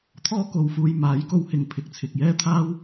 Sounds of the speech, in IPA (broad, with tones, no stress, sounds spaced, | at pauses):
t̪ʰ ɔː˥ k o˨ w f uː˧ j m aː˨˥ j k o˧ w h ɪ˨ ŋ pʰ ɪ˨˥ k̚ t͡sʰ ɪ˨ k̚ j ɛː˥ t̪ʰ aː˥ w